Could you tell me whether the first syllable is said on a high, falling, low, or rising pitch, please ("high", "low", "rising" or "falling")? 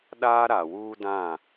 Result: high